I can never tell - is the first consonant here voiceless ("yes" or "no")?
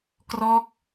yes